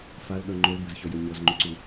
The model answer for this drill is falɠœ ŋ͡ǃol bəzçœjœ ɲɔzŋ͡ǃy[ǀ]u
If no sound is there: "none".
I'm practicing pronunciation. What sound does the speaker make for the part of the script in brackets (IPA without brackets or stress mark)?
ǀ